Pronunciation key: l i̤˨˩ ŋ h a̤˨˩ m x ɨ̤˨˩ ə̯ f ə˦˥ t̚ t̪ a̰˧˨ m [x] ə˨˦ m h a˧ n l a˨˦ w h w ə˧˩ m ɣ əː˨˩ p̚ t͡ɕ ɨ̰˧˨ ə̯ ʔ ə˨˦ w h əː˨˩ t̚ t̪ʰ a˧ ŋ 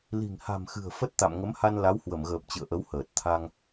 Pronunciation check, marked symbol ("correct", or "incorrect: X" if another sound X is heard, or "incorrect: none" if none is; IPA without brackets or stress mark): incorrect: ŋ